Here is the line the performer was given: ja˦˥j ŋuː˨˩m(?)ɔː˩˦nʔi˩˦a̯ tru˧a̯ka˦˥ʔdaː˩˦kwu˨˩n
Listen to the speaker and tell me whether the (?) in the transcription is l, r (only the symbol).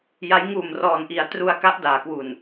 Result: r